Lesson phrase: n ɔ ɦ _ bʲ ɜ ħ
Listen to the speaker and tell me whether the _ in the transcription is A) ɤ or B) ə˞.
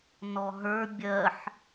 B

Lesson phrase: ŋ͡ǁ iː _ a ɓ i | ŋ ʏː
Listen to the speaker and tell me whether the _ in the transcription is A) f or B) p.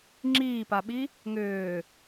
B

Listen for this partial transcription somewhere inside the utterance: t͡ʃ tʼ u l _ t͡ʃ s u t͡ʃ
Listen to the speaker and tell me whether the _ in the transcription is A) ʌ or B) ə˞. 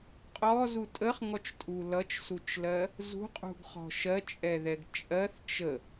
A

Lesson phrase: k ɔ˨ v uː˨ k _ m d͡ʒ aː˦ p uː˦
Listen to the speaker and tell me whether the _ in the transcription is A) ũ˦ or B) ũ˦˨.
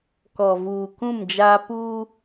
B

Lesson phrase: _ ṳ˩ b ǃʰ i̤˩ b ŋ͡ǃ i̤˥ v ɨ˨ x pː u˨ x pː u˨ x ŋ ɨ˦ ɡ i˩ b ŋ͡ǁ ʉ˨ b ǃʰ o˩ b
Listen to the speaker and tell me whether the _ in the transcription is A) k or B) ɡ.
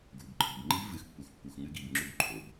B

